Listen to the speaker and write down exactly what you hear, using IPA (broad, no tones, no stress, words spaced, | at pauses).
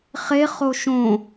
χe χoʃõ